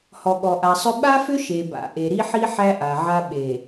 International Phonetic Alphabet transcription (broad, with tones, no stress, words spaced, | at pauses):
hɔ˨ɠɔ˨ʔa˨sˤʏ˦ ɓa˦fʏ˦ ʃe˨ba̰˨ ʔe˨ɾi˦ħi˦ ħæ˦ʔa˨ʕa˦ ɓe˨